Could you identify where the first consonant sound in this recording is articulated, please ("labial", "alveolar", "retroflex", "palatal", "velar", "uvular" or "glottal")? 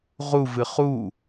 uvular